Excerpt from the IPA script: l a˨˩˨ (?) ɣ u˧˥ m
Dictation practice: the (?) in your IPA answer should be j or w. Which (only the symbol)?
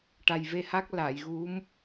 j